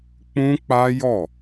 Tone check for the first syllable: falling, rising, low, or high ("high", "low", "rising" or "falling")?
high